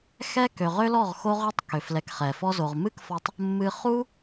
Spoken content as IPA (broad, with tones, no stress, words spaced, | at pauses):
xɛ˦ kø˨ʁø˦lɔ˦˨ʁ xo˦ʁø˦tˤ kø˨flɛ˧kχɛ˨ fɔ˧zo˨ʁmɨ˦kfɔ˧tˤ | mːɨ˦ χu˦